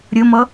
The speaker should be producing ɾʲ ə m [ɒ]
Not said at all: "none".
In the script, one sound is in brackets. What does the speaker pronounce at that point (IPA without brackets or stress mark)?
ʌ